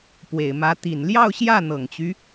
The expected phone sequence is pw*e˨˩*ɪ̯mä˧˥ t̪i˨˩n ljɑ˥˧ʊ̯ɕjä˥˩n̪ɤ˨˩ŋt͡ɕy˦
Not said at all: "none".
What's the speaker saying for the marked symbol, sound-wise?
e˨˩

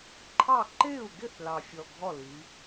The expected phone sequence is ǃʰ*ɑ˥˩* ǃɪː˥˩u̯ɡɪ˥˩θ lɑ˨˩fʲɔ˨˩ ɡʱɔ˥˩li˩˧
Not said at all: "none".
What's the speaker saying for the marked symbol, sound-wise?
ɑ˥˩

